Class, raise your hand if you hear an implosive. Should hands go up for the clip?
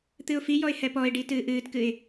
no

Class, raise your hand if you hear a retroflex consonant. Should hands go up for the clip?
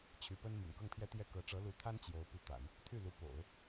yes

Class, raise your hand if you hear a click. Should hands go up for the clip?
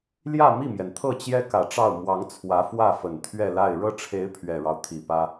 no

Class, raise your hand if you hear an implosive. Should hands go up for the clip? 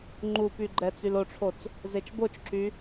no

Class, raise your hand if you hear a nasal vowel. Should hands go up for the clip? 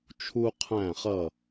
yes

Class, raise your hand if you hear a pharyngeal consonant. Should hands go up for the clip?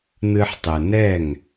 yes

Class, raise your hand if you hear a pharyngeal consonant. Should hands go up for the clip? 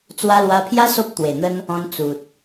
no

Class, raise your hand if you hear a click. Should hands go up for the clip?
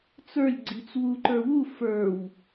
yes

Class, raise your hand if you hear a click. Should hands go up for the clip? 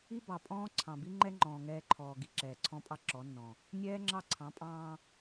yes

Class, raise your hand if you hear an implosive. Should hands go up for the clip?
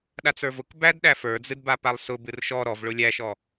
yes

